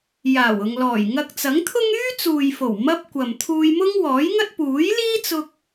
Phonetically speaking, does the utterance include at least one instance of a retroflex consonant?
no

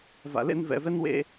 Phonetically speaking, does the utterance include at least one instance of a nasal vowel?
no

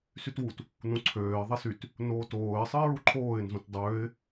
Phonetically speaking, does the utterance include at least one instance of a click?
yes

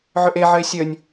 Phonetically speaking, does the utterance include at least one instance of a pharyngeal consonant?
yes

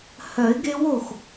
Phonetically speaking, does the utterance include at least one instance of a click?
no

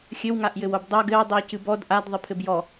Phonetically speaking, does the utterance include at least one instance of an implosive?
no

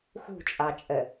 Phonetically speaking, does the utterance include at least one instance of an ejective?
yes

